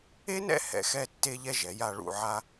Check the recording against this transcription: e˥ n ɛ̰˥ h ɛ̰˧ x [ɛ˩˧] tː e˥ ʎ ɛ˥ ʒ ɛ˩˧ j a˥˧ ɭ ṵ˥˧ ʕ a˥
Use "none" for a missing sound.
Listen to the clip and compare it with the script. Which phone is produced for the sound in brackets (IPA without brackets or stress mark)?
ɛ˥